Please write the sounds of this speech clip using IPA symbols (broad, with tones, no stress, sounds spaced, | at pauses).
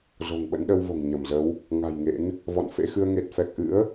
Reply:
z o̤˨˩ ŋ ɓ ə̰˧˥ n ɗ ə˧ w v o̤˨˩ ŋ ɲ ə˧˩ m z ə˨˦ w | ŋ a̤˨˩ j ŋ ḛ˧˥ n | v ɔ̰˧˨ n f ḛ˧˥ x ɨ˧ ə̯ ŋ e˨˩ t̚ f ɛ˨˩ k̚ ʔ ɨ̰˧˥ ə̯